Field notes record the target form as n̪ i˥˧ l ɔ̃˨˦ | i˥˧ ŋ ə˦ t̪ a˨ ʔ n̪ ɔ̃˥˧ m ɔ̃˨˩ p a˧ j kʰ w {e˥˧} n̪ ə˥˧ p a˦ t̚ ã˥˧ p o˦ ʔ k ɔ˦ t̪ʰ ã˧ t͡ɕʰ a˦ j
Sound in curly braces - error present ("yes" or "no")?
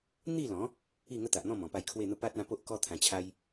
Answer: no